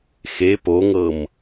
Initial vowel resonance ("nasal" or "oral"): oral